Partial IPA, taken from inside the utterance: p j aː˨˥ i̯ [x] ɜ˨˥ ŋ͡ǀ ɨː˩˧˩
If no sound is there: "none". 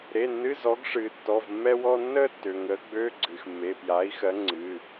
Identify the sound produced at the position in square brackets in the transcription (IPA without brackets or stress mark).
x